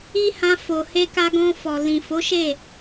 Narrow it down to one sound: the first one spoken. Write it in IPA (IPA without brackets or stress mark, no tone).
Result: i